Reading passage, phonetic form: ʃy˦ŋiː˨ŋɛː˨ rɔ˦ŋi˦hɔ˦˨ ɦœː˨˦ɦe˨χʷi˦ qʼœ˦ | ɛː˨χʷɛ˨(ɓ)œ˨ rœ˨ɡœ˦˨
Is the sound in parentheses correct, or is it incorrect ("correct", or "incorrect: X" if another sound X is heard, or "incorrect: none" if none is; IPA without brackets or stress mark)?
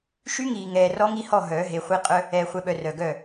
correct